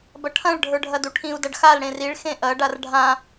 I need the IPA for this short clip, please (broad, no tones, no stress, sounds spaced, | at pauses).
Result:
b ɐ ʈʰ ɐ̃ ɭ ɖʱ ə˞ ɖʱ ɐ d u ʈʰ ĩ u̯ d ɐ ɖ x a l ɽ ẽ r i ɭ x ẽ ʔ ɐ ɖ a r ɖʱ ã